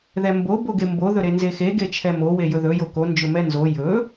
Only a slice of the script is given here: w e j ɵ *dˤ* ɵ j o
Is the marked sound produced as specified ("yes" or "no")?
no